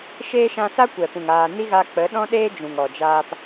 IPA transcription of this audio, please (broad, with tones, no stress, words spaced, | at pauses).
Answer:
ʃeː˦ ʃã˧sa˦kʷɛ˨pũ˨ŋ aː˧ ni˦ɣa˧ k͡pə˨˦ɗɔ̃˦ɗeː˦ d͡ʒũ˨ŋɔ˨d͡ʒaː˧p